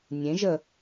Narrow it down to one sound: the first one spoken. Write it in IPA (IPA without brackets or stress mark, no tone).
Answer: nʲ